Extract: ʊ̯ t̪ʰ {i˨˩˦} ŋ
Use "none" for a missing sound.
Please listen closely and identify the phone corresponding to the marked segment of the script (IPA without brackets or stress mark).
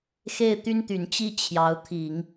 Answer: i˨˩˦